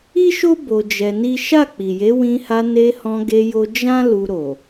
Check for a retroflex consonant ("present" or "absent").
absent